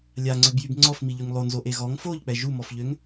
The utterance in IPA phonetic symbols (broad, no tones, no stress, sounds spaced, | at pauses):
lʲ a ŋ͡ǀ ø b j y b ŋ͡ǀ ɔ f m i ʎ y ŋ lˠ o n z o ʔ e ɣ ɔ ŋ f o ʎ k͡p ɛ ʒ u m ɔ f ʎ ø ŋ